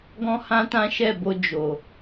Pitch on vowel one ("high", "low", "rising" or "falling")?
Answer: high